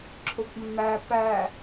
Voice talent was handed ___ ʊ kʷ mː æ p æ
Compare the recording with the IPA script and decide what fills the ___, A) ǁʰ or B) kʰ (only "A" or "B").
A